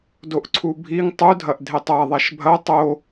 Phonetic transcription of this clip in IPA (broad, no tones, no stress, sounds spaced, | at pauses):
d o ʔ ǀʰ u bʱ i ŋ tˤ u dʱ ɐ ʔ dʱ e tˤ a ðˤ a ʃ bʱ ɐ tˤ o